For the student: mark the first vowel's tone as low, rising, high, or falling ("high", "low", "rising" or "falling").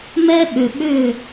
high